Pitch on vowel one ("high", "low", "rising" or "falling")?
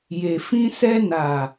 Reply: low